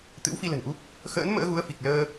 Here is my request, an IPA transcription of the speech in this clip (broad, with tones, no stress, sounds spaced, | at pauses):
t̪ ɨ̰˧˥ w f i˧ l ə̤˨˩ n ʔ u˦˥ p̚ | x ə̰ː˧˥ n m ə̰ː˧˥ ɣ u˨˦ ə̯ f i˨˩ k̚ l əː˧